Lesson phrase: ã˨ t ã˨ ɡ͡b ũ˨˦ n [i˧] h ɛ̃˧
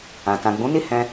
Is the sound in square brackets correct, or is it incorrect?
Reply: incorrect